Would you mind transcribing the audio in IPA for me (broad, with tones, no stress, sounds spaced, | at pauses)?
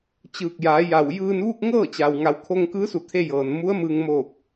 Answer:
t͡ɕ ɯː˧˩ k̚ j aː˩˧ j a˧˩ w j ɯː˧ n ʋ uː˥˨ k̚ ŋ ɤː˥˨ t͡ɕ a˩ w ŋ a˩˧ w kʰ o˧ ŋ k ɯː˧˥ s u˧˩ t̪ʰ e˧ j ɤː˩ n m u˧˥ ə̯ m ɯː˧ ŋ m oː˧˩ k̚